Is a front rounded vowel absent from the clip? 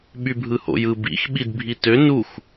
no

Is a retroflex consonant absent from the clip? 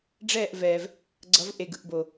no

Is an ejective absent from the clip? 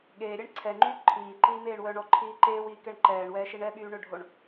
yes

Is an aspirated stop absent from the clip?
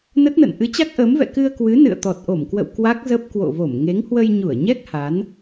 yes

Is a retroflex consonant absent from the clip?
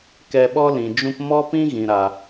yes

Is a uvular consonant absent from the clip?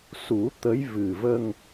yes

